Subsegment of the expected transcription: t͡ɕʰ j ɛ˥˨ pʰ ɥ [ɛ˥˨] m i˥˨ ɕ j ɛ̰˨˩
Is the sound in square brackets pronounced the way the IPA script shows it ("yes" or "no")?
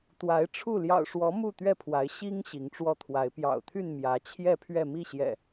yes